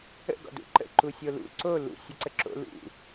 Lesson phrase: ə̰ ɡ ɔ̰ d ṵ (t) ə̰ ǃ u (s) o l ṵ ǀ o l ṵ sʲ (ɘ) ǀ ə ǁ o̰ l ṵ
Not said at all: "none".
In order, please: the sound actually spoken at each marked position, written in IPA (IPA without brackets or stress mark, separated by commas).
ǃ, sʲ, ɘ